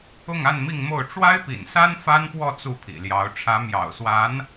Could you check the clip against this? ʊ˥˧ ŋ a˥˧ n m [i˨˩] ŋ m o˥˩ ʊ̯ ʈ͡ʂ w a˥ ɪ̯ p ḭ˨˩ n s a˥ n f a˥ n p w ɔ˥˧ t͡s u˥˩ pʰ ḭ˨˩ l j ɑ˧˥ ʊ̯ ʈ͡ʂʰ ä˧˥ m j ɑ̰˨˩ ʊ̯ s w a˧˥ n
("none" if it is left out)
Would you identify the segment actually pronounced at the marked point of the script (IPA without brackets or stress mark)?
i˥˧